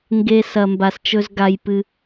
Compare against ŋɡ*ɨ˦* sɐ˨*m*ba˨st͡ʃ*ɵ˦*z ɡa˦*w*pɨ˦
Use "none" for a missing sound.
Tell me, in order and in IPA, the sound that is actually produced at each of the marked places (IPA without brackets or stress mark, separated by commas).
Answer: e˦, m, ɵ˦, j